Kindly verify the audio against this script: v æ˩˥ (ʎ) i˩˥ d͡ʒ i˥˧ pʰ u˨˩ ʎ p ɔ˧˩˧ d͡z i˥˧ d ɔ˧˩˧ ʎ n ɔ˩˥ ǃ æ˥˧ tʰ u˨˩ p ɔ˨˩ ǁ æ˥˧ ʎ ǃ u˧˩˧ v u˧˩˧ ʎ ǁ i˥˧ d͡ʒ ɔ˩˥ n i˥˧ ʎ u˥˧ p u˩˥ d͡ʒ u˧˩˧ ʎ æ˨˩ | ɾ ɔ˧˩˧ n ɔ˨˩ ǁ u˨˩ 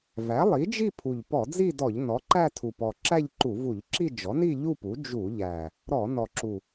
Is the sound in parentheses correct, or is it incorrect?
incorrect